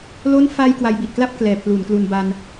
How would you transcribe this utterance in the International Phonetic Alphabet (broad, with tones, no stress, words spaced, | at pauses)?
lo˦˥nfa˧j kwa˧jbi˨˩t̚kla˥˩p̚ klɛː˨˩pʰluː˩˦nklu˧n ba˧n